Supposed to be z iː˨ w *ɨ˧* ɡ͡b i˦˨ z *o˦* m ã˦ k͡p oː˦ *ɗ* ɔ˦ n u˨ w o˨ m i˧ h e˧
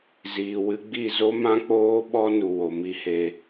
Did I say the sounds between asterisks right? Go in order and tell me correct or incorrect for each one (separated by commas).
correct, correct, incorrect